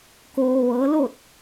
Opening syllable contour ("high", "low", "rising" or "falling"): low